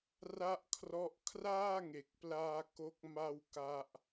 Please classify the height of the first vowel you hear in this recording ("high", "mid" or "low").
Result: low